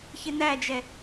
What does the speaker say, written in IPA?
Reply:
çɪnæd͡ʒɛ

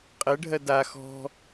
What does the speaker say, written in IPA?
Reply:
qʼɜɖʱɜ da xɔ̤

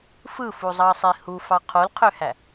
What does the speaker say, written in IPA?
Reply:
fɯfuzˤɑsˤi hufɑ qʰolqʰøhæ

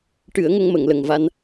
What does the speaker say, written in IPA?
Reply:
ʈɨ˨˩˦ə̯ŋə˧ŋmə˨˩˨ŋlə˨˩ŋ va˧n

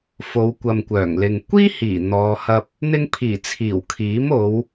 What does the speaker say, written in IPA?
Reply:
fo˨˧wkʷɐ˨mkʷœː˨˩ŋlɪ˨ŋ kʷiː˥hiː˨˩ n̪ɔː˨˧hɐ˧p̚ | n̪ɪ˧ŋpʰiː˨˩t͡sʰiː˨˩w kʰiː˨˥mo˨˧w

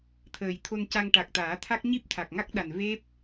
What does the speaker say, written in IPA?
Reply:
t̪ʰəː˨˩jt̪ʰo˧nca˧ŋ ʈa˨˩k̚t̪aː˨˩˦t̪ʰa˦˥k̚ ɲi˦˥p̚t̪ʰa˨˩k̚ŋa˦˥k̚ɗa˨˩n ve˦˥p̚

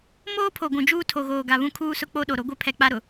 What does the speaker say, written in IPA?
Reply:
moː˦pʰo˨ ɡʷũ˨d͡ʒuː˦ tʰo˨ɣoː˨ɡa˨ βũ˦kʰuː˦sʊ˦k͡po˦ ɗo˨ɾo˦ ɡʷɛ˦pʰɛ˨k͡pa˦ ɾʊ˨

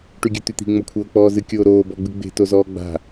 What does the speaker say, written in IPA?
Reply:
ʈyɡʲʉt̪yt̪i̤ ŋ͡mokʷʰɤːk͡pɔːzɨ kʲoːɾoː bɔɡ͡bɨɡ͡be̤ tozɔːɡ͡ba̤

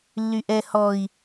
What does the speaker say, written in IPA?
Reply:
lːyʔɛ hɔi̯

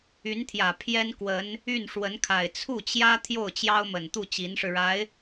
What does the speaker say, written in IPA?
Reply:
y˧˥nt̪ʰjä˨˩ pʰjɛ˥nkwə˧˥n | y˥˩nʂwə˧˥nkʰa˨˩ɪ̯ t͡sʰu˥˩t͡ɕjä˥ t̪ʰjo˥˩ʊ̯t͡ɕjɑ˥ʊ̯mə˨˩nt̪u˥˩ t͡ɕi˧˥nʂɻ̩˧ɻa˧˥ɪ̯

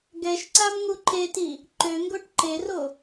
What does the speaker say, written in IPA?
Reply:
ɡɛʃǀam ŋuǃeti | ǃø ŋɡoʈǃero

